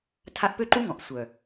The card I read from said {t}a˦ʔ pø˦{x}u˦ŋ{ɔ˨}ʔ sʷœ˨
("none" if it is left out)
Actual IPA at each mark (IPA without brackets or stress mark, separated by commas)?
tʰ, ǃ, ɔ̃˨